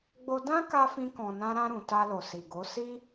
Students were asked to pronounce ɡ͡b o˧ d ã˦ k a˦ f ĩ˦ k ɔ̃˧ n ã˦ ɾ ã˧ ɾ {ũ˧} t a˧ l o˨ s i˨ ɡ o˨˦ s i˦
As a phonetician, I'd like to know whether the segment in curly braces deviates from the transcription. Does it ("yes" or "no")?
yes